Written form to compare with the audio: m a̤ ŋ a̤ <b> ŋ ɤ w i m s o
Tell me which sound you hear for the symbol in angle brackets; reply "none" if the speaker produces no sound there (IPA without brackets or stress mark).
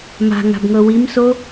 b